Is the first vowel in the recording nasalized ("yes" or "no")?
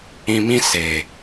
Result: yes